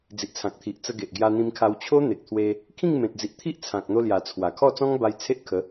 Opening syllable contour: low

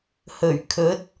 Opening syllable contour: low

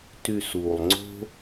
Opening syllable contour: low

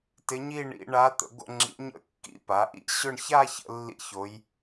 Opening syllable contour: rising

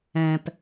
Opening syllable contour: low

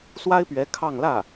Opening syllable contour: high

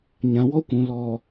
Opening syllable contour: low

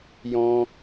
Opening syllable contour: high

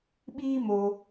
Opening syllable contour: high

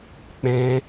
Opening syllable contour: high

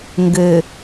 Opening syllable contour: low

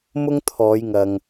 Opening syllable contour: high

